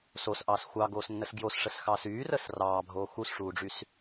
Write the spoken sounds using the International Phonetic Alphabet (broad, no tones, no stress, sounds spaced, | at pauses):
s o s ʔ ɑː s xʷ ɑ ɡ oː s nː ə s ɡ j o s ʂ ə s x ɑː s yː r əː s r ɑː bʱ oː x u s ʂ uː ɖ͡ʐ y s